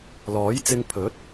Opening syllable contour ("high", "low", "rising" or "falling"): rising